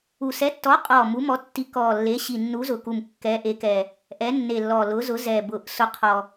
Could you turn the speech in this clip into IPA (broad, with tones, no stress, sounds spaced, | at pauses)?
u˨˩ s ɛ˨˥ tː ɔ˨˥ qʼ ɔ˨˩ m u˨˥ m ɔ˨˥ tː i˨˥ k ɔ˨˩ lː e˨˥ ɕ i˨˩ nː u˨˥ z ʊ˨˩ k u˨˩ m kː ɛ˨˥ ʔ e˨˥ k ɛ˨˩ | ʔ ɛ˨˥ nː e˨˩ lː ɔ˨˩ l ʊ˨˥ z ʊ˨˥ z ɛ˨˩ b ʊ˨˩ ʔ s ʊ˨˥ qʰ ɔ˨˩